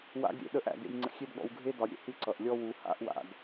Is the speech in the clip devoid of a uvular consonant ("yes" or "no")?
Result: yes